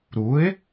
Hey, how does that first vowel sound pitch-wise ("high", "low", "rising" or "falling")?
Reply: rising